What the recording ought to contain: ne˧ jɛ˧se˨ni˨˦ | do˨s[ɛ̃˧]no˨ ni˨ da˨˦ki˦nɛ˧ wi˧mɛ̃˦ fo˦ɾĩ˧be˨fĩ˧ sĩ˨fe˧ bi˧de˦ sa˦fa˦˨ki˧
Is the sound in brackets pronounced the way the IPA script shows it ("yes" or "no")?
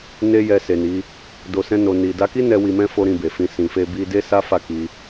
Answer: yes